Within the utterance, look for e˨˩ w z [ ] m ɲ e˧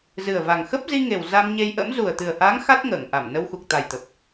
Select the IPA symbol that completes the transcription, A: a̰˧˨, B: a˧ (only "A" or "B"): B